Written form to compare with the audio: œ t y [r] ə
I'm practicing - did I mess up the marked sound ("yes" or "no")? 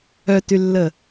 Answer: yes